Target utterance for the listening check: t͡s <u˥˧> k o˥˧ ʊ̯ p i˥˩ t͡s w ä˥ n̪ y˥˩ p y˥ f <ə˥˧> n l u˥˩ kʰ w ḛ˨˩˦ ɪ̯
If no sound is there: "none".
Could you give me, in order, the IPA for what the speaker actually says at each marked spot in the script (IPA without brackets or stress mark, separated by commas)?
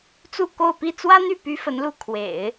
u˥˧, ə˧˥